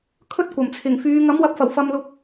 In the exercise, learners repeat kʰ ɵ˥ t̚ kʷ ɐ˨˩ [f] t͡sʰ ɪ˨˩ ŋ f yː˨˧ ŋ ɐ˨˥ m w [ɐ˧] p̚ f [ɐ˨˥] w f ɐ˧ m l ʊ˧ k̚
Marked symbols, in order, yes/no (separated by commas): no, no, no